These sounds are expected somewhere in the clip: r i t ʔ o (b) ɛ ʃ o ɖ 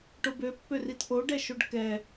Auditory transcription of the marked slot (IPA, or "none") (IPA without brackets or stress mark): ɖ